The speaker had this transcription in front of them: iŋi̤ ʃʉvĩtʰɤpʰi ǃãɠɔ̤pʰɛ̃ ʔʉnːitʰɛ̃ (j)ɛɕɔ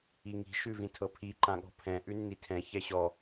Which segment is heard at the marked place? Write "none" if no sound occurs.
ç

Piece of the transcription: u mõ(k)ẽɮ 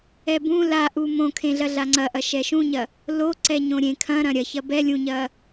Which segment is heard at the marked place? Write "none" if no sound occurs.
kʰ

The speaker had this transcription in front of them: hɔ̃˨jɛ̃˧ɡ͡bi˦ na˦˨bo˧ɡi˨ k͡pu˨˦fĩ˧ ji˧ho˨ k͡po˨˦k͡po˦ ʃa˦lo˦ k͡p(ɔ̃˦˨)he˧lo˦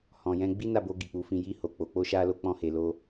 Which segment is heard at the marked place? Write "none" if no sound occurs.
ɔ̃˦˨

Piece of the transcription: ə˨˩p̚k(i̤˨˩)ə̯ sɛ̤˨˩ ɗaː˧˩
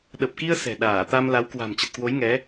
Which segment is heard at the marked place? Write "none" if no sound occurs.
i˧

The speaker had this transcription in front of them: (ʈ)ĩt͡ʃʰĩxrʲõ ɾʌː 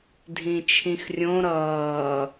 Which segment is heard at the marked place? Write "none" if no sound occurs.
dʱ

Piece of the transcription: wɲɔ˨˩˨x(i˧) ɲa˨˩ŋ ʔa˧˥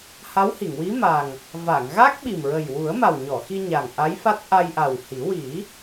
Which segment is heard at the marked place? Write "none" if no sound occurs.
i˧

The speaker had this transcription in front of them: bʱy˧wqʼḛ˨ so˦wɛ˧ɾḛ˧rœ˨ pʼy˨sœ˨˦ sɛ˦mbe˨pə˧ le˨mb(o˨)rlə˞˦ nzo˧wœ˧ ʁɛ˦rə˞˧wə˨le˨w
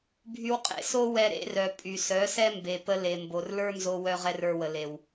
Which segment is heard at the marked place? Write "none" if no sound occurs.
o˨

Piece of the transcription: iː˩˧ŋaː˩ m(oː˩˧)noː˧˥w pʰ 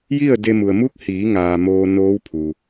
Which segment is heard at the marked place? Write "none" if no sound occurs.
oː˧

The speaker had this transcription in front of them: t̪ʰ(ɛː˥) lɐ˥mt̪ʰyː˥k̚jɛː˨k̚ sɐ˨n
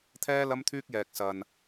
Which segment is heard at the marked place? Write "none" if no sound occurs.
ɛː˥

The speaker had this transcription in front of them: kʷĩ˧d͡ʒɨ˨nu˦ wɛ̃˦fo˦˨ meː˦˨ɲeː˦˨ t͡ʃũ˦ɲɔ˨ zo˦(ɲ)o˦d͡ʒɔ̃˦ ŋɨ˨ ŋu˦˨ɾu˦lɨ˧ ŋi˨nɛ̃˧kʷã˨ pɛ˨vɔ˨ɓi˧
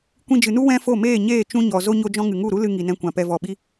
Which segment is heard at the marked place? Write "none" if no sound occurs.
ɲ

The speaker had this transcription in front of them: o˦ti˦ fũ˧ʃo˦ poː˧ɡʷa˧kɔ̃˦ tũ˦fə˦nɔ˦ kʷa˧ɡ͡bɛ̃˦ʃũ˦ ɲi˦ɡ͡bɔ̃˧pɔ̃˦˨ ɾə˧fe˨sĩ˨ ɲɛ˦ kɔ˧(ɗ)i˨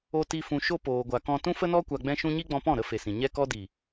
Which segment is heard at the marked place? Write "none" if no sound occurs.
d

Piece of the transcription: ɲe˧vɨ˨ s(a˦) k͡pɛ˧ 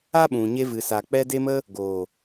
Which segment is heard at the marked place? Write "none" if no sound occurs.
a˨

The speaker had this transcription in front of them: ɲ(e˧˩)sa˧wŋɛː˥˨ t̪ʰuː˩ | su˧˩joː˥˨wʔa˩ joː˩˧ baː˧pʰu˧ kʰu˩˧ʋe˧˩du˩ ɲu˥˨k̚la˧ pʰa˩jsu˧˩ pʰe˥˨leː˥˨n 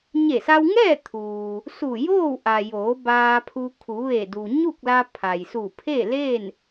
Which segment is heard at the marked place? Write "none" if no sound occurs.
e˧˩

